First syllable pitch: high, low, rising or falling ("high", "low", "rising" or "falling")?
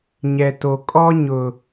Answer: low